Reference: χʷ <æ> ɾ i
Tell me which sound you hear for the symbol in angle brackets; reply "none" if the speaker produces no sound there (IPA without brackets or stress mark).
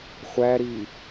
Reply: æ